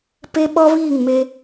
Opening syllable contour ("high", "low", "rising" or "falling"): high